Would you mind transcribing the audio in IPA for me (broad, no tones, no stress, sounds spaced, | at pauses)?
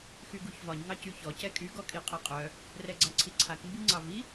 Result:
x y ɡ u ç v ɒ ɲ ŋ ɑ c y ç ɔ c ɛ kʼ y ɡ ɔ kʼ i qʼ ɛ qʼ œ | r ɛ ɡ͡ǀ a ǀʰ i ǀʰ a k m b i ŋ͡ǀ ɑ v i